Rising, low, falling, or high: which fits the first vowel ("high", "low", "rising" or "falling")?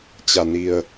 low